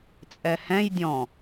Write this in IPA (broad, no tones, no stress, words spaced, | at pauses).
t͡sʼɛhɛ̃j dʲɔ̃